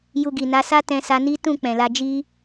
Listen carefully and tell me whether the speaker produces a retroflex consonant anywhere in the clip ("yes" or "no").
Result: no